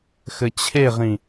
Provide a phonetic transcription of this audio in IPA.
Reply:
xɘt͡ɕʰeʁĩ

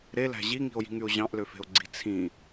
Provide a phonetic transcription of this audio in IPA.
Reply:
ɾelæ̤ ʑiŋi̤o̯ji̤ŋyo̯ ʑɑ̃ʔløfe̤o̯ɡ͡ǀi̤ t͡sʰĩ

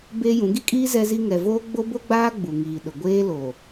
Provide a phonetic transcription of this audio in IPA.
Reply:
beː˦jũ˨˦ ɡi˦kʼiː˦ zɛ˦zi˦ ŋɛ˨voː˦ ɡ͡bo˦bo˦ɡ͡baː˦ ɡ͡bu˨ŋiː˨ɗʊ˨ ɡʷeː˦ lo˨

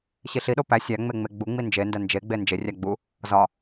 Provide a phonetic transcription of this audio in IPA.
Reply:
ɕiɬiɗo pæ sʲæ ŋ͡meŋ͡meɡ͡buŋ͡mi nd͡ʒendæ nd͡ʒeɡ͡be nd͡ʒerʲæ ɡ͡bu | zɒ

